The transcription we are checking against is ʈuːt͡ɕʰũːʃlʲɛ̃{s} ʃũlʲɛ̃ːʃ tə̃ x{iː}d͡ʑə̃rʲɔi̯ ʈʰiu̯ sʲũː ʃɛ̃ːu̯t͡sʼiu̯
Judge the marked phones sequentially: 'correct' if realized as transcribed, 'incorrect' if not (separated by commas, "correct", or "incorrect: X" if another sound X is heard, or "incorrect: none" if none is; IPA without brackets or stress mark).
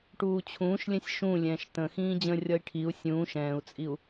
incorrect: sʲ, incorrect: ĩː